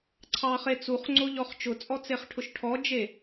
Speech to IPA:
ǀʰ ɑ χ e t͡s u χ ŋ͡ǀ o ʎ ɔ χ t͡ʃ ʊ t͡sʼ ɔ t͡s e χ ʈʰ ʊ ʃ ʈʰ ɔ d͡ʒ e

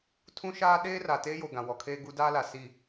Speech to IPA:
tʰ ũ˦ ʃ aː˦ ɗ eː˦ r a˨ t eː˦ j o˨ ɡ ã˨ w ɔ˨ kʰ eː˦ ɡ u˦ d aː˦ l a˨ s i˦˨

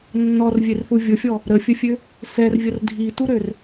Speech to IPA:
nː ɔ r vʲ e r θ u vʲ ʊ fʲ ɔ | ɾ ə fʲ ə fʲ ø | s ɛ r vʲ ə r dʱ i t u ɾ ø r

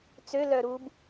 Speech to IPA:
t͡s ø l œ ɾ u b

